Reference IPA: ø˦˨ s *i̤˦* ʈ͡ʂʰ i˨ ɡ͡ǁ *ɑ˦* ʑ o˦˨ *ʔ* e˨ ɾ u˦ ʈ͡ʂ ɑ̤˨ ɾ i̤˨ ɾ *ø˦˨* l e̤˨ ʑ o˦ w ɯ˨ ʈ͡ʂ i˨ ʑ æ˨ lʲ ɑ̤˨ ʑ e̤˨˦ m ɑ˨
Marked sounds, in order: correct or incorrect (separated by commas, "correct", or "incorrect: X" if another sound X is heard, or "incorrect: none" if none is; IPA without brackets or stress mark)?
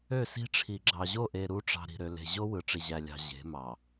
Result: correct, incorrect: ɑ˨, correct, incorrect: ø˨